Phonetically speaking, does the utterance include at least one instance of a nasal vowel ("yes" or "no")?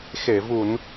no